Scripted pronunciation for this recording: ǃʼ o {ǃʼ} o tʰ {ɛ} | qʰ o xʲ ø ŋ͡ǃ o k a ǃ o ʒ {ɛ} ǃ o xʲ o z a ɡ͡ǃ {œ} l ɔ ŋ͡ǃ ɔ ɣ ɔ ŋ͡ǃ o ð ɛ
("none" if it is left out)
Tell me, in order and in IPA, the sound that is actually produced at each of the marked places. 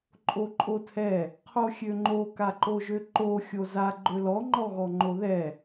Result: ǃʼ, ɛ, ø, ø

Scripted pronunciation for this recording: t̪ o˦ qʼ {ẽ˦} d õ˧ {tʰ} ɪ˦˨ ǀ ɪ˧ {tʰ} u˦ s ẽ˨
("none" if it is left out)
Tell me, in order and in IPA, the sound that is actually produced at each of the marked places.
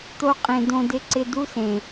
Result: ẽ˧, d, d

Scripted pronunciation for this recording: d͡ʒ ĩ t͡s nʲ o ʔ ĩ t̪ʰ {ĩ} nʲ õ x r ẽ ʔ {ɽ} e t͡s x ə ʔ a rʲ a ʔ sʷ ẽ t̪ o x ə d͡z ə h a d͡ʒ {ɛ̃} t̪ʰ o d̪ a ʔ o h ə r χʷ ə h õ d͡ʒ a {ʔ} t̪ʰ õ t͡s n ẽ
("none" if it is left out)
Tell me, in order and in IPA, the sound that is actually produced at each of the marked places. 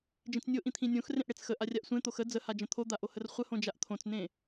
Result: ĩ, ɽ, ə̃, ʔ

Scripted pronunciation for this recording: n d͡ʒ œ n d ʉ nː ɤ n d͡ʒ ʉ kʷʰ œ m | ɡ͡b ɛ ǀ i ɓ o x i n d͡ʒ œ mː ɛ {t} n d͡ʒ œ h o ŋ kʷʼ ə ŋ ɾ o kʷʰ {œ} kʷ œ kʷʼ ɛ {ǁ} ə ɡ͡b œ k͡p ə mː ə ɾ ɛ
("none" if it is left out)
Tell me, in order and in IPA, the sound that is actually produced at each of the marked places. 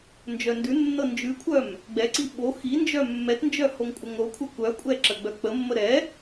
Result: t, ə, ǁ

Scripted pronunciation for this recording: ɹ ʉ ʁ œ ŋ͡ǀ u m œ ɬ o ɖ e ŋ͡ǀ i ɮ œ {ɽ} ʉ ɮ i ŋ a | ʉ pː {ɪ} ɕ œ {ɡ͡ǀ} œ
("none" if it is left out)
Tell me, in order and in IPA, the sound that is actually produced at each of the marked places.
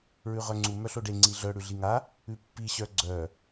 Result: ɽ, i, ɡ͡ǀ

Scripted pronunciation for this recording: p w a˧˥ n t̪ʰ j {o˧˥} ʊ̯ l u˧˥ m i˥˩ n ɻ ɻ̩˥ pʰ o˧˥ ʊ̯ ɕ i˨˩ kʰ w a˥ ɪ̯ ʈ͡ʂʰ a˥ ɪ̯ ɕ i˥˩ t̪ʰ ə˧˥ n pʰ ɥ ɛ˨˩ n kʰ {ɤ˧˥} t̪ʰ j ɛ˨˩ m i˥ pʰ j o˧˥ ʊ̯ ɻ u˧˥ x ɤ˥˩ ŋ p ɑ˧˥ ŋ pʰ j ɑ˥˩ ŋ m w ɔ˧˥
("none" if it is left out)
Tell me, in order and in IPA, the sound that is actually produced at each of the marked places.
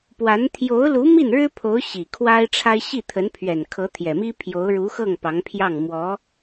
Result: o˧˥, ɤ˧˥

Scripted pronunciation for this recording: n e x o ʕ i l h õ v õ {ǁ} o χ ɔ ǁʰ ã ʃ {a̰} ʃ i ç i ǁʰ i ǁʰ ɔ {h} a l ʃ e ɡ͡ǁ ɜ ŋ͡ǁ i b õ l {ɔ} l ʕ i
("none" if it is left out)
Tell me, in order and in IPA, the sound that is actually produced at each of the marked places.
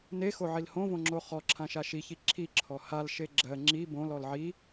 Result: ŋ͡ǁ, a, h, ɔ

